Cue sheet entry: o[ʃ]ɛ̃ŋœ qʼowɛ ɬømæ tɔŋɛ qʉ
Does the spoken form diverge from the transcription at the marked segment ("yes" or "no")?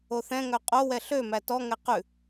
yes